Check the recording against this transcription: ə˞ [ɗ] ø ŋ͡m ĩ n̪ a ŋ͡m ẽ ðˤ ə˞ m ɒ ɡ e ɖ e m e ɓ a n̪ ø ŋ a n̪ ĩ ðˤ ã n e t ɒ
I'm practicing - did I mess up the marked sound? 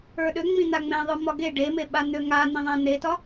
no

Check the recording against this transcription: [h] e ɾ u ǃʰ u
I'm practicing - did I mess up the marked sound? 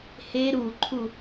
no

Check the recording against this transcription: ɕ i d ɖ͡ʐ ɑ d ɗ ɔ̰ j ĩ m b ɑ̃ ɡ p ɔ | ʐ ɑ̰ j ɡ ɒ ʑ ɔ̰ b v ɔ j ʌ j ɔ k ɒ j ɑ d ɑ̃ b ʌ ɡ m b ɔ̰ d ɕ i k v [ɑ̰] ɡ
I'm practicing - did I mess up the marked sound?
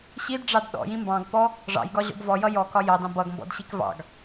no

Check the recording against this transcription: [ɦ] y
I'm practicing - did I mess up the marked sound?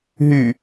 no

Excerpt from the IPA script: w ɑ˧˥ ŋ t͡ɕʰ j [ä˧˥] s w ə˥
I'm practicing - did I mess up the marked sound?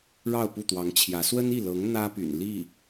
no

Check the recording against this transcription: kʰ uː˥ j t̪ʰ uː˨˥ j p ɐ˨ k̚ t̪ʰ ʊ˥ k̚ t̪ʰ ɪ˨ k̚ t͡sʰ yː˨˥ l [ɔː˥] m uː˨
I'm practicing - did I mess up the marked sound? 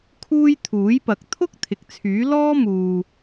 no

